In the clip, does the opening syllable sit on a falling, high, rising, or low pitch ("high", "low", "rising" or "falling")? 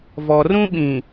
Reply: low